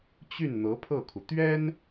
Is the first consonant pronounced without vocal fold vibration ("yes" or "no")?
yes